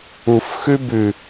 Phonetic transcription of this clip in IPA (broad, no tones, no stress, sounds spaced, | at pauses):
u f x ʉ b ʉ